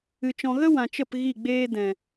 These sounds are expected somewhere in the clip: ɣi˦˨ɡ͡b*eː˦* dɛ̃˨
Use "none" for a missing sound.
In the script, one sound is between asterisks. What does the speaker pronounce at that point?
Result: eː˦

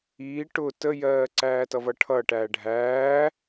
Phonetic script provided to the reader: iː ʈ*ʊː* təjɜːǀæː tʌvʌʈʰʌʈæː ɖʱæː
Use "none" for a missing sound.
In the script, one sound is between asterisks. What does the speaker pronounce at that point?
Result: ʊː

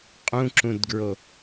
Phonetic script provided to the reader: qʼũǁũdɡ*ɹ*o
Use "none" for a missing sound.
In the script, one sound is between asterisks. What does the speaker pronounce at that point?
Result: ɹ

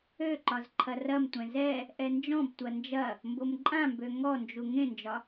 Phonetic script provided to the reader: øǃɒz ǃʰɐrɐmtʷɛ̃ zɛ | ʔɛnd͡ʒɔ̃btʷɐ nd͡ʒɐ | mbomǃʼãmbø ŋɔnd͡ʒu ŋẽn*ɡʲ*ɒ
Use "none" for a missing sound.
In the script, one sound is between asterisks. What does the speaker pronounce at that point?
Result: d͡ʒ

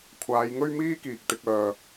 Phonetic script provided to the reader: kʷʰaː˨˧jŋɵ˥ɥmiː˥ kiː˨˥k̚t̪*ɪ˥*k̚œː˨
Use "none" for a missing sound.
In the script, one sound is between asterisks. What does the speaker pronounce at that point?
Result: ɪ˨˥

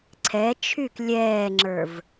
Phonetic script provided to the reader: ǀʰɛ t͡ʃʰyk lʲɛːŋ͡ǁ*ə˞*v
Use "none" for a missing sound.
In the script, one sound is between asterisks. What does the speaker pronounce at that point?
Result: ə˞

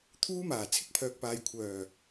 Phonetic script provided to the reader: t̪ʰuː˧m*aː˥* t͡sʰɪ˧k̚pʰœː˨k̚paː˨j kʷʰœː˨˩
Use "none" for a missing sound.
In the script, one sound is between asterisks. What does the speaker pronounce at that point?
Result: aː˨˩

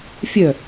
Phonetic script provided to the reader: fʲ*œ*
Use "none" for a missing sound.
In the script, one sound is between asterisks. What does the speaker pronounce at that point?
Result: œ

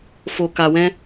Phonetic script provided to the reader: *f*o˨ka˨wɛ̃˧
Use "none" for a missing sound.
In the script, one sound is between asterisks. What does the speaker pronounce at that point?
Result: f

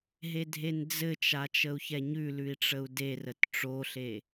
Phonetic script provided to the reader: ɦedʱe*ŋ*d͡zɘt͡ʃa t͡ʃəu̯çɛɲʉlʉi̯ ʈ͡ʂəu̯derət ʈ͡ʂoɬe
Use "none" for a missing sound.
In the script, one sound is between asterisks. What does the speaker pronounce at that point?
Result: n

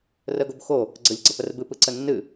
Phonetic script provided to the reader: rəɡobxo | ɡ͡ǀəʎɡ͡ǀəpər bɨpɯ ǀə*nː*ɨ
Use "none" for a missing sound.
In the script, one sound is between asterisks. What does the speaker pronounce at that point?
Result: nː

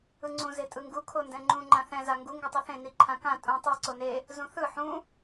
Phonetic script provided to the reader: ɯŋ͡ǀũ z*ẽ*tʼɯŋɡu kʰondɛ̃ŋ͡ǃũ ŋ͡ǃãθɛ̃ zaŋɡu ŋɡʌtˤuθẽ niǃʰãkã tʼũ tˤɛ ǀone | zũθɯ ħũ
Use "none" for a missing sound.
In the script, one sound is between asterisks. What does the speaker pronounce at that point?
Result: e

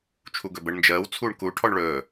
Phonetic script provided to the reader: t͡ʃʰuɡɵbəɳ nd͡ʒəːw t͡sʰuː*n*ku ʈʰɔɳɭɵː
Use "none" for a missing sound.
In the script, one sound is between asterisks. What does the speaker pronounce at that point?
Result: ɳ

